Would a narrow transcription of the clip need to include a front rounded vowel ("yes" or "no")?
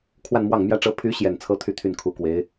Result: yes